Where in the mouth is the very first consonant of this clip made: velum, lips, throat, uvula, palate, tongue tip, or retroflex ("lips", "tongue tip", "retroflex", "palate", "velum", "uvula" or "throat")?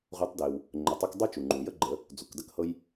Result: uvula